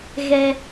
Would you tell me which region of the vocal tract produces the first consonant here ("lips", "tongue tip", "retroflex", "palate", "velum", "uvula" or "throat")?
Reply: velum